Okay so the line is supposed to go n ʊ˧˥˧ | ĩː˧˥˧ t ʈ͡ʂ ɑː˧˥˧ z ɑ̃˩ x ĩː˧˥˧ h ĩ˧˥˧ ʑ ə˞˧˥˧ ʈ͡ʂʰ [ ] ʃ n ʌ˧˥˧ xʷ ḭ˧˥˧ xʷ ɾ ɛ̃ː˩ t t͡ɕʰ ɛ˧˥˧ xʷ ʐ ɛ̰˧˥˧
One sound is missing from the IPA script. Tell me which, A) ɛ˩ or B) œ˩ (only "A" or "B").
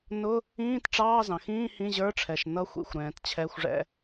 A